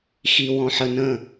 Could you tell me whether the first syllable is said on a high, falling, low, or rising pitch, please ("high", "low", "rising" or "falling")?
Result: low